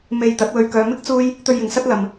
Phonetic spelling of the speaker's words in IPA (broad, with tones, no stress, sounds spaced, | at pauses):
m e˧ j t̪ ɐ˨˥ t̚ w ɵ˧ ɥ k œː˨ m ɪ˥ k̚ t͡s uː˥ j | t̪ ɵ˧ ɥ j ɪ˨ ŋ s ɐ˥ t̚ l ɐ˧ m